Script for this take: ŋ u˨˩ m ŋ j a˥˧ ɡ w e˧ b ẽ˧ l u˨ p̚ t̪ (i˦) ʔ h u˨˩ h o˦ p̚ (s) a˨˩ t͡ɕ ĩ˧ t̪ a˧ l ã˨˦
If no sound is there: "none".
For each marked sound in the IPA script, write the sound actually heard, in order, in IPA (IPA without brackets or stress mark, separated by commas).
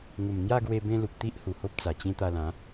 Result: i˦, t͡s